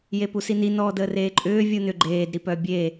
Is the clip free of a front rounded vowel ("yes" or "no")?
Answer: no